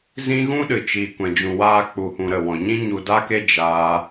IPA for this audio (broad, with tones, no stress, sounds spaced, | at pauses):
z ĩ˦ ɣ ũ˦ ɗ ɨ˨ t͡ʃ iː˨ kʷ ɛ̃˨ d͡ʒ ũ˨ w aː˧ k͡p u˨ h ũ˨ ɾ ə˦˨ w ɔ̃˨ ɲ ĩ˦ ɲ u˧ d a˦ k e˦ d͡ʒ aː˦